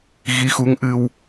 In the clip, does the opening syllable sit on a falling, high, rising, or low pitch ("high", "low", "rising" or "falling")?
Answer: rising